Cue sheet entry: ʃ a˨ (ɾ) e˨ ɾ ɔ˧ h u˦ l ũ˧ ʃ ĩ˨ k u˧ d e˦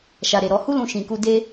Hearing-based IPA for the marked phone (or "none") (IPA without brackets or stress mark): ɾ